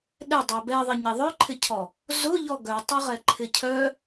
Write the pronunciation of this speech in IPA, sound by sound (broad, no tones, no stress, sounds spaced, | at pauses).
ɗ ɛ dˤ ɛ b ɛ ðˤ ɪ ɲ e ðˤ œ ǃʰ ɪ cʰ ɔ | z ʊ ʎ ɔ ɡ œ tˤ ɐ ʁ ɛ ǃʰ ɪ cʰ œ